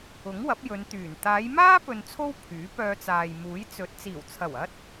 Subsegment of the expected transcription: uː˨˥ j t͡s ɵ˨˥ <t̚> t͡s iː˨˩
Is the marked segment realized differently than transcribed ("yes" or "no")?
no